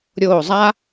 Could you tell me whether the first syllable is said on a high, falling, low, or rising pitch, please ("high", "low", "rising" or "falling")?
low